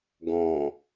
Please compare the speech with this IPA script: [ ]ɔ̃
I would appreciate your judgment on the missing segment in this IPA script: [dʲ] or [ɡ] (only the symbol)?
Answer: ɡ